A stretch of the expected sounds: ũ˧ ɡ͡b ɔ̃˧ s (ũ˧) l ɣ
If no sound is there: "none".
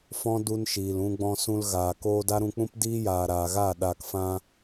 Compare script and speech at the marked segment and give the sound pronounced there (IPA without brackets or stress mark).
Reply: ũ˧